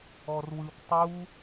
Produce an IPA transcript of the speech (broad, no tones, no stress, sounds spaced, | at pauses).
ɔ r w ɯ p tˤ u